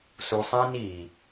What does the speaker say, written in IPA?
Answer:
s u˨ sˤ ĩ˦ n i˨

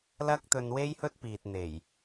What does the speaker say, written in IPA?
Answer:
l ɐ˥ k̚ t̪ ɵ˧ n w e˥ j h ɵ˥ t̚ p iː˨ t̚ n̪ e˨˩ j

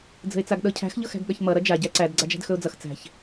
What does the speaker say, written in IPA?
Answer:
d͡z ə̤ ɪ̯ t͡s a ɡ ɗ ɤ cʰ æ̤ x ʎ ɤ x æ̤ ɡ ɠ ʌ ç m ʌ ɾ ʌ d͡ʒ a ɟ æ ǀ æ d ɡ͡ǀ a d͡ʒ æ̤ d x ɵ ʊ̯ d͡z ʌ x t͡s æ̤ ç

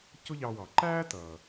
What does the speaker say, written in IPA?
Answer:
c ʊ˥ ʎ ɑ˧ w ɑ˩ ǃ æː˥ t ʌː˩

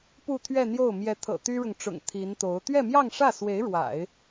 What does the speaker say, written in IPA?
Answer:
p u˥˧ t̪ʰ ɥ ɛ˥˧ n̪ j o˥˩ ʊ̯ m j ɛ˧˥ t̪ʰ ɤ̰˨˩ t̪ y˥ ɻ ʊ˨ ŋ ʈ͡ʂ ʊ̰˨˩ ŋ t̪ʰ i˧˥ n t̪ o˧˥ ʊ̯ t̪ ɥ ɛ˥˧ m j ɑ˥˧ ŋ ʂ ä˥˩ s w e˧˥ ɪ̯ ɻ w a̰˨˩˦ ɪ̯

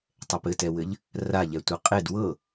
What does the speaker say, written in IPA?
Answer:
tˤ ɛ p ɘ t ɛ w ɘ ʎ | r a ʎ ɛ tʷ ɘ qʼ e d w ɤ

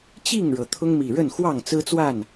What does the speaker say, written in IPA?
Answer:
t͡ɕ i˥˨ ŋ ɻ ɤ˩ t̪ʰ ʊ˦ ŋ m i˨˩ ɻ ə˥˨ n x w ɑ˥˨ ŋ t͡s ɹ̩˦ t͡s w a˥˨ n

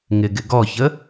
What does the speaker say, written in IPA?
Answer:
ŋ ɪ ɡ ɪ ɡ ɔ ç ə

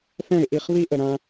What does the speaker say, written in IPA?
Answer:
θ ɛ̃˥˩ ɪ̯ ʔ i˥˩ χ β i˥ ʔ ə˩ ɾ ã˧

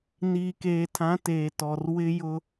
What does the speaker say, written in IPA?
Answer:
n iː˨ k eː˨ tʰ ã˨˦ t eː˨ t ɔ˨ r w ɪ˦ j ʊ˦

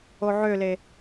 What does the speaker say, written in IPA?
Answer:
o ʕ ø l e

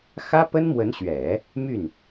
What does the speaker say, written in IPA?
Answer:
x ä˥ p ə˥ n m w ə˧˥ n ɕ ɥ ɛ˨˩˦ | m y˥˩ n

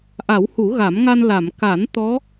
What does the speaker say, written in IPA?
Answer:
ʔ a˨˩˦ w h u˨˩˦ ɣ a˨˩˦ m ŋ a˧ n l a˨˩˨ m k a˨˩˦ n t̪ ɔ˧˥

